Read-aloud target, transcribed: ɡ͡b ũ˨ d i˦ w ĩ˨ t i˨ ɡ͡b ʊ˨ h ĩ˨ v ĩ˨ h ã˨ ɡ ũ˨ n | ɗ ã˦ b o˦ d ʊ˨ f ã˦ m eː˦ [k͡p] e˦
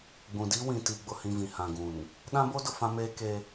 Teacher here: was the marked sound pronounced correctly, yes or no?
no